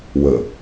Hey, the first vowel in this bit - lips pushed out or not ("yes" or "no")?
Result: no